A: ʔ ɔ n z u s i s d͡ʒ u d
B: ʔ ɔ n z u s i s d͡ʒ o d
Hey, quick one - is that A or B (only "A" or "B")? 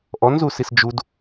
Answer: A